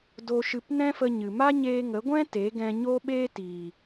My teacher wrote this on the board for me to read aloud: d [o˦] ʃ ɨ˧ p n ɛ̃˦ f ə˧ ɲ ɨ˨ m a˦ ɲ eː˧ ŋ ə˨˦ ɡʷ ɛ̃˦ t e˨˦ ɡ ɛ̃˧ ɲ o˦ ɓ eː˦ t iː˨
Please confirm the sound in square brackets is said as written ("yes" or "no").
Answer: no